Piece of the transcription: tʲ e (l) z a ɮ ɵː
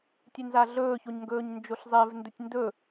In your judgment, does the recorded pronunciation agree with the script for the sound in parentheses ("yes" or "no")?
no